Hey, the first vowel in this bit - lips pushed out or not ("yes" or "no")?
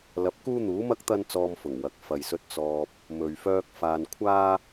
no